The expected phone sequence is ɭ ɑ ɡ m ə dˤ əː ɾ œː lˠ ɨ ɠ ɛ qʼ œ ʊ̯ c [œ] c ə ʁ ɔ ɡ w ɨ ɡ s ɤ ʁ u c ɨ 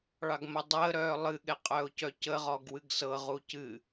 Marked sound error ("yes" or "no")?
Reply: no